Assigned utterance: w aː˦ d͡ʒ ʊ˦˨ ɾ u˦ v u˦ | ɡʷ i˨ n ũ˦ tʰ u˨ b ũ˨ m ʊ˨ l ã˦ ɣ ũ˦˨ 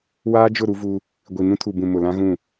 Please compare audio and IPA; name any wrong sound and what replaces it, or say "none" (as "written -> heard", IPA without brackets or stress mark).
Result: none